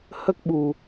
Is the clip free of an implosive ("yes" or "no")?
no